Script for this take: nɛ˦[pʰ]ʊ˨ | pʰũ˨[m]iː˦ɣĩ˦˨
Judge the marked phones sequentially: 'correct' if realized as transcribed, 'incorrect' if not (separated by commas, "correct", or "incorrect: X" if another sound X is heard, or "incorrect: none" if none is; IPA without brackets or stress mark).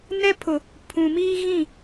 correct, correct